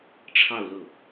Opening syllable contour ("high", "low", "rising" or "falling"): falling